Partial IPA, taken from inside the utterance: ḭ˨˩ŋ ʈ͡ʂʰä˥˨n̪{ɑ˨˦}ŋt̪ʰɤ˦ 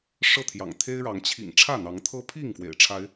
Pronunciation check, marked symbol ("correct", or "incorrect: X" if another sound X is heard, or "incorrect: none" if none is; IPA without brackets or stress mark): correct